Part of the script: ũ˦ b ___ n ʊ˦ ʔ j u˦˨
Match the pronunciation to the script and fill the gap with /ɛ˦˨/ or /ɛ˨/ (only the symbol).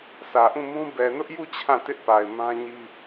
ɛ˨